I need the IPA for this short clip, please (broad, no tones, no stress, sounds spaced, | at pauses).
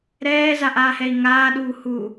ɾ ɛː z a ʔ aː h ɛ i̯ ŋ aː ɗ uː h uː